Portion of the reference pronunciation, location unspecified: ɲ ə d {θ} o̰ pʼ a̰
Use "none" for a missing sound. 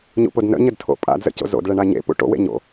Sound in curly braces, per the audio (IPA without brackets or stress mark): tʰ